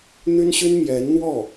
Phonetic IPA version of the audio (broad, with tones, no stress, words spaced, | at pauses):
n̪y˥nɕy˥n mjɛ˧˥nn̪wɔ˥˩